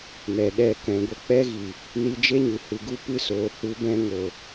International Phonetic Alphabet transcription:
nɛ˨ɗɛ˦˨ kɛ̃˨ɡʷə˧k͡pɛ˧ɣi˨ | ni˧d͡ʒe˦ɲɨ˨ hɨ˨ɡu˧ pɨ˧soː˨ hu˨˦bɛ̃˧ ŋo˨

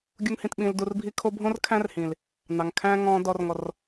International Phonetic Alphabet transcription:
ɡʲu˧ŋhĩ˨tɓĩ˨l du˨rbʱi˧kʰo˧bʱõ˦r kʰæ̃˦rhĩ˨l | nɑ˨ŋkʰæ̃˦ ŋɔ̃˧ dɔ˨rŋɔ˨r

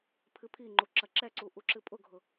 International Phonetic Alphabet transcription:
pʰɨpʰiŋ͡ǃu ǁɐǁɛǀu ʔuǁɨpʼʊɡʱʊ

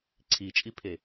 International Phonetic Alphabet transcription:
ǀʰit͡ʃʼipʰe

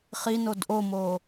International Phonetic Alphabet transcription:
χinod ʔomo

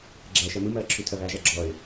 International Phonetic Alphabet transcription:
ɡ͡ǁæːʃɜmɯmɜː ǁʰytʰɜβæʒæ ɡ͡ǁɔɪ̯

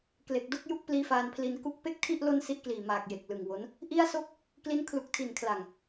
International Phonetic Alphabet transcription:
kle˨˩k̚do˥˩k̚ ju˥˩k̚pliː˦˥faː˧npʰli˧n ku˦˥k̚pe˥˩k̚tʰi˥˩ʔ lo˥˩nsi˦˥ʔkliː˨˩maː˨˩k̚ je˨˩k̚lɯ˨˩ŋwo˦˥n | ʔi˥˩a̯so˥˩k̚ | kli˦˥n kʰlu˨˩k̚tʰi˨˩nkʰla˨˩ŋ

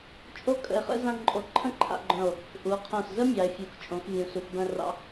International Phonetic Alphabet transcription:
t͡ʃʼo˥kʼə̰˧e̯χə̰˥ zã˥ ǃʼo˧ ǃʰə̃˥˧ǃʰa̰˧ɡ͡ǃœ̃˧˩o̯ | ʔu˩˧o̯qʰõ˧˩szə˥ mʲɑ˩˧e̯fʲu˩˧xt͡ʃʼõ˩˧xvʲũ˩˧ su˩˧xbœ̃˧rɑ̰˧

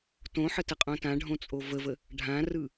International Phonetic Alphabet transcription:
tõħətəqʼõ tãɖʱõt͡sʼo vəvə | ɖʱãrɯ

